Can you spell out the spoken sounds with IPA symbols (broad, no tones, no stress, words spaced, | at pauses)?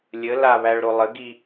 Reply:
lʲə laβæɭɾo lˠəɡi